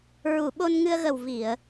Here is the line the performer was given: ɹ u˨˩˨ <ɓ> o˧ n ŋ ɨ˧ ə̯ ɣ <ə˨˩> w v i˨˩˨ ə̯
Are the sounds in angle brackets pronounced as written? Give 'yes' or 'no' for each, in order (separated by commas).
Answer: yes, yes